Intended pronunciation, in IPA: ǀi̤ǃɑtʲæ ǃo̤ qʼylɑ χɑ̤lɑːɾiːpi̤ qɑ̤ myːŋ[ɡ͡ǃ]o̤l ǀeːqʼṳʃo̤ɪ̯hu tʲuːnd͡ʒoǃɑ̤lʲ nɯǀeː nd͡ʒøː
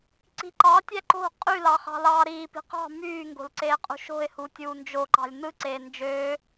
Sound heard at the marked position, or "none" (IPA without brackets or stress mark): ɡ